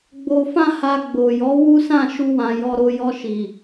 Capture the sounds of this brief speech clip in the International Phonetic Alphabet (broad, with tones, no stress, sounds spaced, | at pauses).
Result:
ɡ͡b o˧ f ã˦ h a˧ ɡ͡b o˨ j ɔ˨˦ w u˦ s ã˦˨ ʃ u˧ w ã˨ j ɔ˧ ɾ o˧ j ɔ˧ ʃ i˨